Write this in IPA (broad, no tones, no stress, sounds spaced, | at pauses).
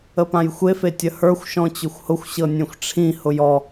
ə p ã j xʷ e f e tʲ ə h ə˞ xʷ ʃ ɔ̃ t͡ɕ ʊ xʷ h ʊ xʷ ɕ ɤ nʲ ẽ xʷ ʈ͡ʂʰ ĩ h ʊ j ɔ